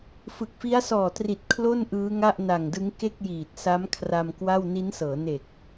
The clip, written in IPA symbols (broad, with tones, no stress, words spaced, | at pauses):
fɯ˨˩k̚fi˦˥a̯sɔː˨˩tri˨˩t̚ kʰlo˥˩n ʔɯː˦˥ŋa˥˩ʔna˨˩ŋdɯ˦˥ŋ ke˥˩k̚jiː˨˩t̚sa˦˥m kʰra˧mkwa˥˩w ni˦˥nsɤː˩˦ ne˨˩k̚